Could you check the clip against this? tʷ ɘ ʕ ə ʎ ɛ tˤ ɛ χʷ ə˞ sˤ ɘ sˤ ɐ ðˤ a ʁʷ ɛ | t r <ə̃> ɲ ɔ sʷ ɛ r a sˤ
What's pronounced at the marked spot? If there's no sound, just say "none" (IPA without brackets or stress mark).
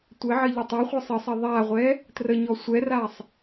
ə